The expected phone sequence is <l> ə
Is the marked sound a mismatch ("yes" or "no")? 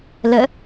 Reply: no